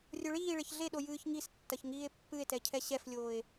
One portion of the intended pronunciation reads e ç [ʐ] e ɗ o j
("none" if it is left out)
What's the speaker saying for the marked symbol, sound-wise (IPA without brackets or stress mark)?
ɮ